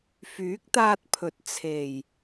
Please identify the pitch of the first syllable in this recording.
rising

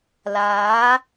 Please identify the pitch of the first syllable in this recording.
rising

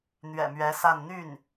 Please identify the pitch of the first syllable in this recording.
low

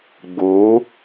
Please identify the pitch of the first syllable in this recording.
rising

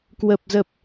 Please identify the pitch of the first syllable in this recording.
low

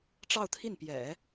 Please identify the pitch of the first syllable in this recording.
falling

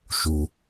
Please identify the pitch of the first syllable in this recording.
low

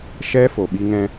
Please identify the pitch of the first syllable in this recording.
high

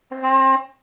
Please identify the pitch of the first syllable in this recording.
high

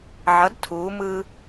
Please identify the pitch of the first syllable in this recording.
rising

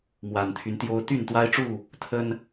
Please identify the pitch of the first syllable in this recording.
low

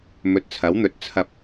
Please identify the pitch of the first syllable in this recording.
low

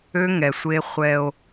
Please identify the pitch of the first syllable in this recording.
high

